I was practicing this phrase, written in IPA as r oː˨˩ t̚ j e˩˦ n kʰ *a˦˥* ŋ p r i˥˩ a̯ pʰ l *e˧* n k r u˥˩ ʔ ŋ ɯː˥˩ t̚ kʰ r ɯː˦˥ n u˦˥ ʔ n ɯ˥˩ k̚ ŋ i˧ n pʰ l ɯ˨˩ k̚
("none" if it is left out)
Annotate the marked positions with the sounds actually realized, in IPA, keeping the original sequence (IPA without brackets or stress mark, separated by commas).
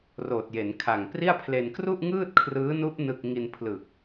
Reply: a˨˩, e˧